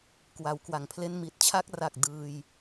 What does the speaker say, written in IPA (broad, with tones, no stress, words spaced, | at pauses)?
kwa˩˦wkwa˩˦ŋpʰle˥˩n mi˨˩t̚t͡ɕʰa˥˩k̚ra˨˩k̚ dɯː˧j